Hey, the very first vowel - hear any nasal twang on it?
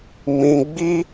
yes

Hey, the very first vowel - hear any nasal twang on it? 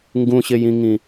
yes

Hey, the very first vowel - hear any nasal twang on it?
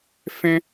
yes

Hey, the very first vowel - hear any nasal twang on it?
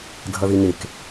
no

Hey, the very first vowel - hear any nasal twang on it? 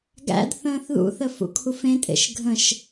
no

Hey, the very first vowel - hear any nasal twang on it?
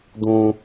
yes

